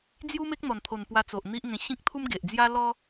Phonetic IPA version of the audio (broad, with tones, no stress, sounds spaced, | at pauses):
d͡z j u˦ m e˦ k̚ n̪ ɔ˨˩ n t̪ʰ o˨˩ n p w a˧ t͡s o˨ ʔ n̪ i˦ ʔ ŋ ẽ˧ ɕ ĩ˦ k̚ t̪ʰ u˦ m ɡ e˨ ʔ d͡z j a˦ l ɔ˦